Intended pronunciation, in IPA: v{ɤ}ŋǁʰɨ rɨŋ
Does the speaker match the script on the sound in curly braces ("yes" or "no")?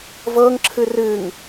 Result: yes